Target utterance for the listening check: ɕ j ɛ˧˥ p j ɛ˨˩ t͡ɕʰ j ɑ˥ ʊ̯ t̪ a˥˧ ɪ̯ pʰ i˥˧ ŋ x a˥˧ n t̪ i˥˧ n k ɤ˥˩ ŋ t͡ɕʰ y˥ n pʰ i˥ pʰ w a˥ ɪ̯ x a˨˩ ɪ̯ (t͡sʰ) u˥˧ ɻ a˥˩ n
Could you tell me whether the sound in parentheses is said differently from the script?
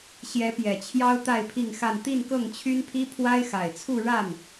no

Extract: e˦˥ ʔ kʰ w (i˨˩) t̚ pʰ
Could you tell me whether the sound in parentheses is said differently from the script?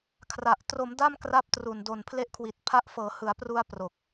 no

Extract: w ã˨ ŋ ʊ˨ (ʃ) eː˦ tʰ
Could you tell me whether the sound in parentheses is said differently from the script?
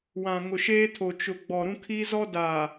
no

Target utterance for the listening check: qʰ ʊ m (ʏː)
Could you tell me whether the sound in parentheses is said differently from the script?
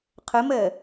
yes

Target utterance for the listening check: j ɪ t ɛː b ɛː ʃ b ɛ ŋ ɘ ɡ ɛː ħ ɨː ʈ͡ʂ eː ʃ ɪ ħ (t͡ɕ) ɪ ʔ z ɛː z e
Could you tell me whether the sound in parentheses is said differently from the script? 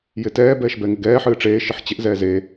no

